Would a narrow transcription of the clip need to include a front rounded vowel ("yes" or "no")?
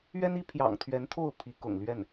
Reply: no